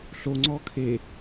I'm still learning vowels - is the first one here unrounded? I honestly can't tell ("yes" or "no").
no